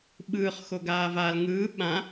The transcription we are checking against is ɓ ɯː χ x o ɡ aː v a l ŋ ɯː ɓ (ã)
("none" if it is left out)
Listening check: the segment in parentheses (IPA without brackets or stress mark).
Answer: ã